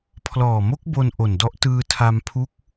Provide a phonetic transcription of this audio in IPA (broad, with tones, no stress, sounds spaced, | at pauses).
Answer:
pʰ l ɔː˨˩ m o˦˥ k̚ b o˧ n ʔ o˨˩ n d ɔ˦˥ ʔ t ɯː˧ tʰ a˧ m pʰ u˦˥ k̚